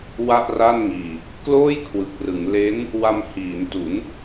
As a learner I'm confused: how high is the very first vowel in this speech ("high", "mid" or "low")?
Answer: low